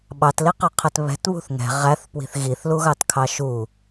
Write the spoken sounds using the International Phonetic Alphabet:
ɓ ɑ t l i q ʌ qʰ ɛ t β ɛ̤ t β ṳ θ ŋ ɛ̤ ʁ æ θ p w i̤ θ ɣ i θ l u ɣ ɑ t kʰ ɑ ʃ u

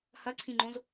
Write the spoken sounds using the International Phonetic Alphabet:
h ɐ ǀʰ ĩ ŋ͡ǃ õ z

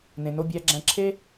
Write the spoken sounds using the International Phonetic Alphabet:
n ẽ˩ n o˧ bʲ æ˧ ɡ͡ǁ æ̃˧ ǁʰ e˥

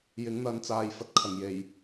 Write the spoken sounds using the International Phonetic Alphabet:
j ɪ˨˥ ŋ n̪ ɐ˨˧ n t͡s aː˨ j f ɐ˨ t̚ kʰ ɐ˨˩ ŋ j e˨˩ j

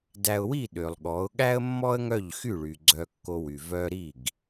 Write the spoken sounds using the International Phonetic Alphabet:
d æ˧ ʊ̯ w i˦˨ ɗ ø˨ lˠ ɠ ɔ˨˦ ʊ̯ ɠ æ˦ ə̯ mː ɔ˦ ə̯ ŋ œ˦˨ ʎ x y˦˨ ɭ y˨ ɡ͡ǀ œ˧ kː o˧ w y˨ v œ˦ ɾ i˦˨ ɡ

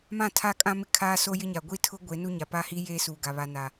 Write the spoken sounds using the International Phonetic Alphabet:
m ã˦˨ tʰ a˦ kʼ ã˦ m ɪ˦ kʰ aː˦ s o˦ j ɪ˦ ɲ a˨ ɡʷ i˦ tʰ ʊ˦ ɡʷ e˨˦ n u˦ ɲ a˨ p a˦ h i˦ j eː˦ s uː˨ ɡ a˨ β a˨ n a˨

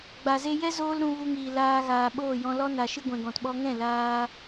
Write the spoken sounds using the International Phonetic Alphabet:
ɡ͡b a˨ z e˧ j ɛ˦ z oː˦ l ɾ ũ˧ v u˧ ŋ iː˨ l aː˧ ɣ aː˨ ɓ oː˦˨ j ɔ̃˧ l ɔ˦ n a˨ ʃ ɨ˧ ɡʷ ɛ̃˨ ɡ ɔ̃˨ t ɓ ɔ˧ ŋ ɛ̃˦˨ l aː˧

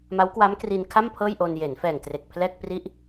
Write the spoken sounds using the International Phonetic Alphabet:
m a˦˥ w k w a˦˥ m k r i˧ n kʰ a˥˩ m pʰ ɤː˥˩ j ʔ o˧ n j eː˩˦ n f ɛː˨˩ ŋ t r e˨˩ k̚ pʰ l ɛː˥˩ k̚ p r i˥˩ ʔ

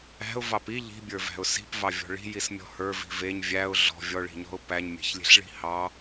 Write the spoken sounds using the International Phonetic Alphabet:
æ̤ ʊ̯ v ɑ p i ʎ i̤ bʲ ə˞ v æ̤ ʊ̯ s i̤ p v ɑ vʲ ɔ̤ ɭ i̤ j i s mʲ ɔ̤ h ə˞ v i̤ v e ɲ vʲ æ ʊ̯ ɮ ɔ̤ vʲ ɔ ɭ i̤ ɲ ɔ̤ ʊ̯ p æ ɲ mʲ e̤ ç lʲ e̤ ɬ ɭ i̤ h ɑ

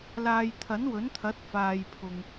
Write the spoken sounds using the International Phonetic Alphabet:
l aː˨ j t̪ʰ ɐ˨˥ n w ɵ˨˥ n t̪ʰ ɐ˨˥ t̚ f aː˨ j pʰ ʊ˨ ŋ

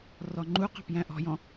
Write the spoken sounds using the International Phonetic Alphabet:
r ɔ ŋ͡ǃ u q ɑ̤ p j æ̃ ʔ ɔ̤ j ɔ̃

